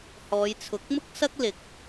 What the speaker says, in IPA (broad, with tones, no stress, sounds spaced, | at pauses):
h ɔː˨˧ j t͡sʰ ʊ˨˥ k̚ m ʊ˥ k̚ s ɐ˥ k̚ l ɪ˨˥ k̚